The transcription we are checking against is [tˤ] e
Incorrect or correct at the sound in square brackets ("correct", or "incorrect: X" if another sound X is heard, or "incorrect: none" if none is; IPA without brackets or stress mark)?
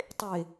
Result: correct